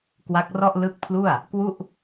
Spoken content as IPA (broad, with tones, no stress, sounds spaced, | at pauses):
k w a˦˥ k̚ r ɔ˥˩ ʔ l ɯ˦˥ k̚ pʰ l u˥˩ a̯ | k w u˥˩ ʔ